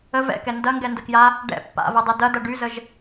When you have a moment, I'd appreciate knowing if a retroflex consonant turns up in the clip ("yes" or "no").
yes